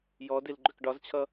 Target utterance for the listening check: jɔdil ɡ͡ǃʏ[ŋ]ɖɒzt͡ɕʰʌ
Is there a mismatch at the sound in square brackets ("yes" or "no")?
yes